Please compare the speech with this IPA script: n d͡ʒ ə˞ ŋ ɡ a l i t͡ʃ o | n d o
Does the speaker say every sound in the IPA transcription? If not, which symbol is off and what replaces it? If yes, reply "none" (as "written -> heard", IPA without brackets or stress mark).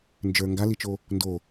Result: none